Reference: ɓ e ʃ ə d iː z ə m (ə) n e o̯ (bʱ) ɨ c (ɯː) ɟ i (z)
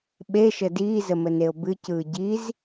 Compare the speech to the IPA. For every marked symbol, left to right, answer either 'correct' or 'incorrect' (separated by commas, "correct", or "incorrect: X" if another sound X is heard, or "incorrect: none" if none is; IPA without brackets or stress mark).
correct, incorrect: b, correct, correct